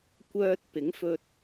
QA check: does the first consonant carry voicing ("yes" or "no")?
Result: no